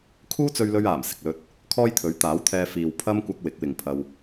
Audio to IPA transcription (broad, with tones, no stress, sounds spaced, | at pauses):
kʰ uː˥ t͡s ɵ˧ ɥ l ɵ˧ ɥ aː˨˩ m s ɪ˨ k̚ l ɵ˧ t̚ | kʰ ɔː˥ j t̪ʰ ɵ˨˥ ɥ t̪ aː˨˥ w t̪ʰ ɛː˧ f iː˨ w pʰ ɐ˥ m kʷ ɐ˧ k̚ w ɪ˨˥ k̚ w ɪ˨ ŋ pʰ ɐ˧ w